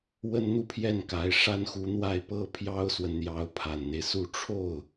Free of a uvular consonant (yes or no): yes